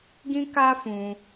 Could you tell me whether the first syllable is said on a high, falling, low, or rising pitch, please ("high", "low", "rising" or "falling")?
high